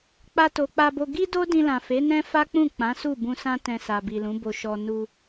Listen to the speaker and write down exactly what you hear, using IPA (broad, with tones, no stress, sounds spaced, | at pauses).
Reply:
k͡p a˧ t o˨ k͡p a˧ b o˧ ɡ i˦ d o˦ d ĩ˧ l ã˨ f e˨˦ n ɛ̃˦ f a˦ k͡p ũ˦˨ k͡p ã˨˦ s u˦˨ b ũ˧ s ã˦ t ɛ̃˧ s a˨ b i˨ l ũ˨˦ b o˧ ʃ ɔ˧ n u˧